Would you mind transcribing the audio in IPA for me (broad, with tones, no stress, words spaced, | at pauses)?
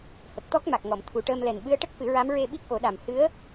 hə˨˩k̚t̪ɔ˦˥k̚ma˨˩k̚ŋɔ˨˩˨m t̪ʰu˨˩ʈəː˧mlɛ˨˩n ɓɨ˧˥ə̯ʈə˦˥k̚fɨ˨˩˦ɹa˧˥m ɹe˧ ɓi˦˥k̚ʔo˨˩˦ɗa˨˩m hɨ˧˥ə̯